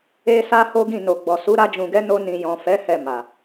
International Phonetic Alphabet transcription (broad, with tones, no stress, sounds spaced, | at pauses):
e˧ s a˦ h o˦ ɡ ĩ˦˨ n o˨ ɡ͡b ɔ˨ s u˨˦ ɾ a˧ d͡ʒ ũ˨ ɡ ɛ˨˦ n o˧ n ĩ˨ j ɔ̃˨ f ɛ˨˦ h ɛ˦˨ m a˨